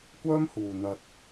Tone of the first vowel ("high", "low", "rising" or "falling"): high